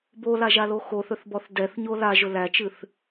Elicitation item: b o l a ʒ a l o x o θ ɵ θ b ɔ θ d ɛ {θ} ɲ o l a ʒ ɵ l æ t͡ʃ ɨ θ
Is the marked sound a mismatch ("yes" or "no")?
no